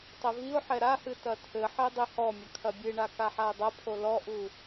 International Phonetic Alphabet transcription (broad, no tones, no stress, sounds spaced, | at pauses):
tˤ ɘ v i ʊ̯ ħ ɛ ɾ a h ɨ t ɐ tʰ ɘ ħ e dˤ e h ɔ mʲ ɐ kʰ ɐ bʲ ɨ ɳ a k a ħ a ə̯ dˤ ɐ pʰ o l ɔ ʔ u